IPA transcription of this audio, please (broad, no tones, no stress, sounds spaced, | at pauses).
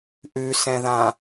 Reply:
ʔ ʉ s ɛ̃ ð ã